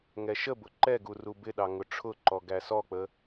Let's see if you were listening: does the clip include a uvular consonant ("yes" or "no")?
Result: no